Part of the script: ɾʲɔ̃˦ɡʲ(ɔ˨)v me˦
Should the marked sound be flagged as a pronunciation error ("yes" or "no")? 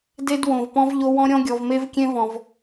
no